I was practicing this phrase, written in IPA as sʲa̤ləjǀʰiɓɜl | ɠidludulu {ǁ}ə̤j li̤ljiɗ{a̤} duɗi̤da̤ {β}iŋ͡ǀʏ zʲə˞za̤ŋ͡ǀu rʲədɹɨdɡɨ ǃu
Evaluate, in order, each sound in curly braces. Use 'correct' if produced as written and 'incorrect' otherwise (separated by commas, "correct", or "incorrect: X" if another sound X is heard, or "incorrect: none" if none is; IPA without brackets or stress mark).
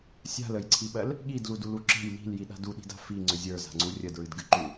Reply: correct, correct, incorrect: f